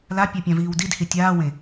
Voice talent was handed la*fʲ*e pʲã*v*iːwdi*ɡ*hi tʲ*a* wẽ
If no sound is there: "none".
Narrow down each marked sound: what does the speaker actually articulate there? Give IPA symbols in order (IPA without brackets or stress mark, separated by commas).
pʲ, v, d, aː